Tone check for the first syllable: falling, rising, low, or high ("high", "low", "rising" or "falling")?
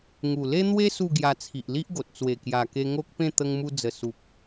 low